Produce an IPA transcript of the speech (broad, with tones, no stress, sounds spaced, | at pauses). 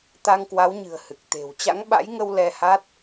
t̪ a˧ ŋ k w a˨˦ w ɲ ɨ̤˨˩ ə̯ h ɨ˨˩ k̚ t̪ e̤˨˩ w t͡ɕ a̰˧˥ ŋ ɓ a̰˧˥ j ŋ ə˧ w l ɛ˧ h a˦˥ t̚